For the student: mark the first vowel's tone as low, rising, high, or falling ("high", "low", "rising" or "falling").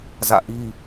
falling